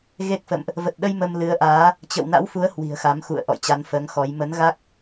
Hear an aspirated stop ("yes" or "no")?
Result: no